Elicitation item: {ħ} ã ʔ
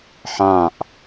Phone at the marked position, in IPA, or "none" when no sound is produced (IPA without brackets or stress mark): ħ